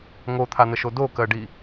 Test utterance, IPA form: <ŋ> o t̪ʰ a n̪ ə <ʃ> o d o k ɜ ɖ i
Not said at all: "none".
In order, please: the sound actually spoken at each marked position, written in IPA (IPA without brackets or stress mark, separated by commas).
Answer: ŋ, ʃ